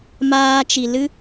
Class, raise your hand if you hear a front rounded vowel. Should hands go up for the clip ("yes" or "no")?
no